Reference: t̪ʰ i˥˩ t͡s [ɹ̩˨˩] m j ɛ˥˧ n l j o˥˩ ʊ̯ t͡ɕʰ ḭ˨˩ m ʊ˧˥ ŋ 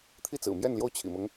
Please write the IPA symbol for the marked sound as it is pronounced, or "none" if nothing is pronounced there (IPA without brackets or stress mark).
ɹ̩˨˩